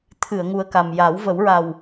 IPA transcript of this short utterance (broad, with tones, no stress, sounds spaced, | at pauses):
t̪ʰ ɨ˨˩˨ ə̯ ŋ u˨˩ ə̯ k a˨˩ m j a˨˩˦ w v ə˨˩˦ w ɹ a˨˩ w